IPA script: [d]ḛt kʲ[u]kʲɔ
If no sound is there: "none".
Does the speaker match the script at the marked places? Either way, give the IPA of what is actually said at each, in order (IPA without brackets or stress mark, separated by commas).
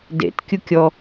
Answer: d, u